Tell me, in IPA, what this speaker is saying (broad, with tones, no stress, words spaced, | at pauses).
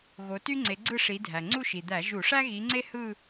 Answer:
ɣo˨˦ty˥ŋ͡ǀe˨˦ɡ͡ǀɯ˥˧ ʂi˨˦dʱæ˩ ŋ͡ǀu˥˧ʃi˩d̪æ˧˩˧ ʒu˧˩˧ʂæ˥ɣi˨˦ŋ͡ǀe˥ hɯ˥˧